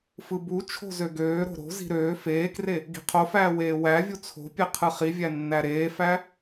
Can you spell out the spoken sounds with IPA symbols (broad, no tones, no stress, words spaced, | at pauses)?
fɯbut͡ʃʰo̤ zøɡøːɾo̤ ɾo̤zi̤ ɾøː feːkre | ɡi̤qʰofæː weːwævʲu t͡sʰo̤pʲe qʰɯχivʲæ nːæɾeːfæ